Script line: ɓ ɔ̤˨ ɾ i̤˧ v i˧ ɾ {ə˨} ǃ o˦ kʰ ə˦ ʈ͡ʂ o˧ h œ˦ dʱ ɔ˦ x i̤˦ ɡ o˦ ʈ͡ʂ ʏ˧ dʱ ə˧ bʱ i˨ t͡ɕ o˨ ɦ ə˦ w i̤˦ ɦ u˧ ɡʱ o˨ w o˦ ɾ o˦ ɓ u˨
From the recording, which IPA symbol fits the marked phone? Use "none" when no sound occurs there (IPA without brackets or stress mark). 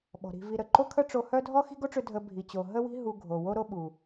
ə˨